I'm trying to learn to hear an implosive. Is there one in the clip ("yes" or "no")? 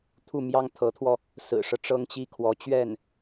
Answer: no